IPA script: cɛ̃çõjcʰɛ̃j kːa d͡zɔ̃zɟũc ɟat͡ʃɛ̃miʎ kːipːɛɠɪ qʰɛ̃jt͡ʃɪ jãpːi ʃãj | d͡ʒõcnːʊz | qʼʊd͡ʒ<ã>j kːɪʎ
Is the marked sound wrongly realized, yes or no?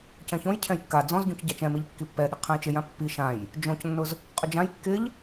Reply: no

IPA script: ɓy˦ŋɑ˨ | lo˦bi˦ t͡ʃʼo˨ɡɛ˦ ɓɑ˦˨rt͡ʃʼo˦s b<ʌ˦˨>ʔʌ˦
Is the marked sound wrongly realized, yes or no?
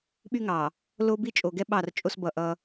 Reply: no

